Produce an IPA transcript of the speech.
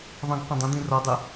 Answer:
ðˤ ə̃ ɡ qʷ ə̃ dˤ ə̃ d̪ ĩ r ɒ dˤ ø

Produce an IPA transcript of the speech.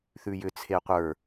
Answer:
θ ʉ j ʏ t͡sʰ e qʷ ə˞

